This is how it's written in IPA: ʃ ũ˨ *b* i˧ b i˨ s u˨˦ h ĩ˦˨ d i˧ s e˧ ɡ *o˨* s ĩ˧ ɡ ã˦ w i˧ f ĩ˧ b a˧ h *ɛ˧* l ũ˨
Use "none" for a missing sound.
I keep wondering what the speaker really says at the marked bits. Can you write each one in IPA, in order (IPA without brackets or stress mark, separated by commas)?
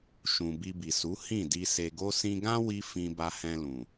b, o˦, ɛ̃˧